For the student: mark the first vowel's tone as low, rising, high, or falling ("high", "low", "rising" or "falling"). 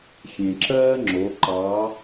low